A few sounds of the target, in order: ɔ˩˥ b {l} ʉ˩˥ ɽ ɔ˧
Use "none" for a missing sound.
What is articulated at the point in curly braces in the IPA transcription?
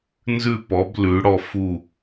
l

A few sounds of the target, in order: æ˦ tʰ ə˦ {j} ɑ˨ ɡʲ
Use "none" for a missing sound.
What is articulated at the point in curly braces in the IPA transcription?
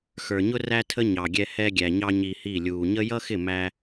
ɲ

